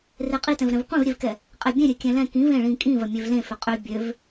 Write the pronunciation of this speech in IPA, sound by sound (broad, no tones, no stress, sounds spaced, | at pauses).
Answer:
r e qʼ i t ɛ̃ v ɾ ɛ̃ v qʷ ẽ v ɾʲ e v k ɛ | qʼ ɛ bʲ ẽ ɾʲ ø kʲ ɛ̃ l ɛ̃ k ĩ v ẽ ɭ ĩ kʼ ĩ v ɐ mʲ ø v l ẽ f ø qʼ ø bʲ ø v